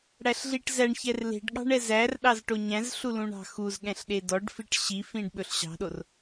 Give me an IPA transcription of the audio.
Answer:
ɽ æ ɬ ɮ i ʈ z æ ɳ ç ɛ r l e̤ ɖ ɠ ɑ̤ ɳ ɛ z æ r ɗ ɑ z ʈ o ɲ æ̃ z ɬ u l ũ ɳ ɑ̤ x u z ɠ ɛ̃ ɬ ɗ e d ɔ ɖ f i ʈ ɕ i f ĩ ɖ ɓ ɵ ɬ ɕ ɑ̤ ɗ o r

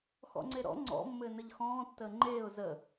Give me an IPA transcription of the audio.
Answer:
x ɔ̰ ŋ͡ǀ e ɾ ɔ̰ ŋ͡ǀ ɔ̰ mː ɘː n ə ʎ x ɔ̃ː tː əː ŋ͡ǃ eː ʊ̯ z ə

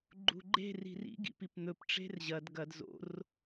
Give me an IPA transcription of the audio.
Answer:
ɡ͡ǃ ṳ ɡ͡ǃ e̤ r i̤ r ḭ ɡ ḭ p i p n̪ ɵ p ʈ͡ʂ e̤ r ʑ ɐ d ɡ ɐ d z o̰ r

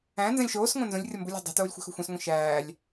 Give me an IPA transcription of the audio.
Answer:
æ̃ n z æ̃ lʲ ʃ oː s ŋʷ æ̃ n z õ lʲ rʲ ɒ m b u lʲ æ̤ dˤ i̤ t oː lʲ xʷ æ̤ x o̤ xʷ ẽ s ŋʷ ĩ ʃ æː lʲ

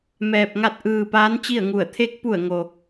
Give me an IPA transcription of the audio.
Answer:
m ɛː˧ p̚ ŋ a˥˨ t̚ ʔ ɯː˧ p aː˧˥ n t͡ɕ i˥˨ ə̯ ŋ u˧˩ ə̯ t̪ʰ e˧˥ k̚ p u˧˩ ə̯ ŋ o˩

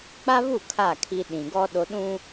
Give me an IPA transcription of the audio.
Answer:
k͡p a˦ β u˦˨ kʰ a˦˨ kʰ i˦ ɗ ĩ˨ ɡ ɔ˦ ɗ o˦ ɗ ũ˦

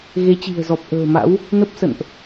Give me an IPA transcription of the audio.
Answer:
ɣ e˨˦ t͡ɕ i̤˨˩ ə̯ z ɔ˨˩ p̚ ʔ ə̤ː˨˩ m a̰˧˥ w | n ə˦˥ p̚ s ə̰˧˨ n ʔ

